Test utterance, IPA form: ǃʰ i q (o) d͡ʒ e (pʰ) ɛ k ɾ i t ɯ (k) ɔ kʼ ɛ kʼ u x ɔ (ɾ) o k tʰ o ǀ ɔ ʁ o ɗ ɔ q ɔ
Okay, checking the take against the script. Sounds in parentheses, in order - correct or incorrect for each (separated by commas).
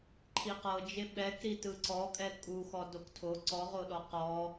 incorrect, incorrect, incorrect, incorrect